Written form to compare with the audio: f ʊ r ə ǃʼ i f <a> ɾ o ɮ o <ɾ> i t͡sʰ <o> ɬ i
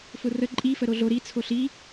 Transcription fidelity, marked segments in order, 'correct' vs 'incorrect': incorrect: ə, correct, correct

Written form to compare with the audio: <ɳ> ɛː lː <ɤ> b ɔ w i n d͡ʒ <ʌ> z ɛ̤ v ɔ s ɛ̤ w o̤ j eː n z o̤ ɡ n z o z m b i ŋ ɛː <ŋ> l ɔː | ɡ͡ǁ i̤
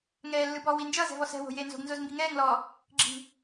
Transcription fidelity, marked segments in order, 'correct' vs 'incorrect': incorrect: ŋ, incorrect: ɯ, correct, correct

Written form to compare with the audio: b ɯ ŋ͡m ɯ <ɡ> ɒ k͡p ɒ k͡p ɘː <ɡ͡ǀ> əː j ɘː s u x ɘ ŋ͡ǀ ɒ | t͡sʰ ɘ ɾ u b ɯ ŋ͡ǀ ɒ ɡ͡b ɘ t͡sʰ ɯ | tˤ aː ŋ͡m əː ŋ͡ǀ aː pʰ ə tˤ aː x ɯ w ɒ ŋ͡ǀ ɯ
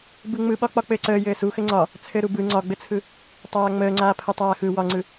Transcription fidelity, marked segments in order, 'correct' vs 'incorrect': incorrect: ɓ, incorrect: ǀ

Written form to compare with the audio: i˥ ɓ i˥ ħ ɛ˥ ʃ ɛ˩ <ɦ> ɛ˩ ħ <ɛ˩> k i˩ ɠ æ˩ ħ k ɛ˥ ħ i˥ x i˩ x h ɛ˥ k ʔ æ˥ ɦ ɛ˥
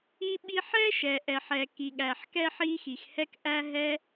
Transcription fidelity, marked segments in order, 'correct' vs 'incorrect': incorrect: ʔ, correct

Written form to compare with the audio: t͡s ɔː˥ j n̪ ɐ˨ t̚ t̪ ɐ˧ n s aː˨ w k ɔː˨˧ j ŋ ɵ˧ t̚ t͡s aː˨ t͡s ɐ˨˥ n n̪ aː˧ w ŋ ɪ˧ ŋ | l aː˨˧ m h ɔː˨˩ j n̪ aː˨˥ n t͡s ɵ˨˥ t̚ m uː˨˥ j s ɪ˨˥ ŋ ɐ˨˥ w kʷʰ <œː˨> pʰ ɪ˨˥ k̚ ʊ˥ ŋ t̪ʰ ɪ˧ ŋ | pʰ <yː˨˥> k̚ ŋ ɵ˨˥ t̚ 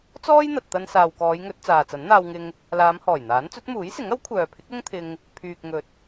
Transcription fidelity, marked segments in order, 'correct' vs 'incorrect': correct, incorrect: yː˨

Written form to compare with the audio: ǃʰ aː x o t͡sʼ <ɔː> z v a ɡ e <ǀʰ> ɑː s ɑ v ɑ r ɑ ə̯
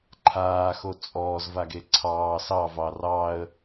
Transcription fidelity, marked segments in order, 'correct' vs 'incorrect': correct, correct

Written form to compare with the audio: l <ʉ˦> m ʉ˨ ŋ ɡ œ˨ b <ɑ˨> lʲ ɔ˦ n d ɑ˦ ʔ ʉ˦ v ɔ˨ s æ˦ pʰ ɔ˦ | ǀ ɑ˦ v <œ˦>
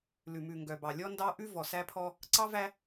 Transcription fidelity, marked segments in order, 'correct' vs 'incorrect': incorrect: ʉ˨, correct, incorrect: æ˦

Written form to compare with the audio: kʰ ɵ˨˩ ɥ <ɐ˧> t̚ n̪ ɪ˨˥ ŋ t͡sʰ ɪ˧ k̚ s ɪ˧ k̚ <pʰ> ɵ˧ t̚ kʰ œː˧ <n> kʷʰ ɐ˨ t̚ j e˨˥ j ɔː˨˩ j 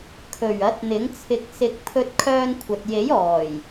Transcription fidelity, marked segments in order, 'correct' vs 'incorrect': incorrect: ɐ˨˥, correct, correct

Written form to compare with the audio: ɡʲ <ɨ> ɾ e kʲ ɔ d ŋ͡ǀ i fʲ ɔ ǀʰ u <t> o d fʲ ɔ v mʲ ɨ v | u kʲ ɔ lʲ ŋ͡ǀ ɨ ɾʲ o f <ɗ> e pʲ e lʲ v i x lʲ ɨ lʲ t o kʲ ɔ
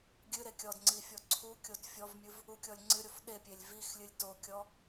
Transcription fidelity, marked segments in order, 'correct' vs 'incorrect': correct, incorrect: kʲ, correct

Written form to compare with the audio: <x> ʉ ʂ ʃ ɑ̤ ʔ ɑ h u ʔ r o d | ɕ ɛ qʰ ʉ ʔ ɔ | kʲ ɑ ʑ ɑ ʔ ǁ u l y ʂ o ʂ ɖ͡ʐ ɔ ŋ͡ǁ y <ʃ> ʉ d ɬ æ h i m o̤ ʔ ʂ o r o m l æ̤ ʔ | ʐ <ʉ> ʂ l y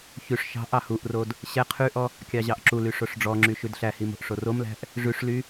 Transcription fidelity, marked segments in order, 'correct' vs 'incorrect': incorrect: ç, correct, correct

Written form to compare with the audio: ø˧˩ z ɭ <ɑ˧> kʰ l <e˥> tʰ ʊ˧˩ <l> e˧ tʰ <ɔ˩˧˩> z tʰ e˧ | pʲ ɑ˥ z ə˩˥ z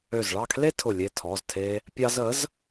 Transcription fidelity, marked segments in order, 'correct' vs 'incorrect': incorrect: ɑ˥˨, correct, incorrect: lʲ, correct

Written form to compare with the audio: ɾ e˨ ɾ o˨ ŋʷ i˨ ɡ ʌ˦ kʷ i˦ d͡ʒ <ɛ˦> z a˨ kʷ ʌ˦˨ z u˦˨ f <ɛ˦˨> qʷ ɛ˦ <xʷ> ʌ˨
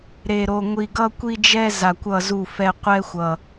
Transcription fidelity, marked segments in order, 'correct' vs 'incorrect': correct, incorrect: ɛ˦, correct

